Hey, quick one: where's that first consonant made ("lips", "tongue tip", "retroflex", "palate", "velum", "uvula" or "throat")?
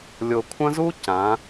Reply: tongue tip